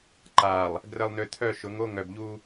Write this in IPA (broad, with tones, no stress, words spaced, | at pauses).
ǃa˨lˠ | ɡrə˨lˠnʏ˨ t̪ʰœ˦˨ʃʊ˨˦ŋo˦ ŋœ˨bʎu˦